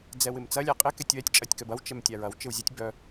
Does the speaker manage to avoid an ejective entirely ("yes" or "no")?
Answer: no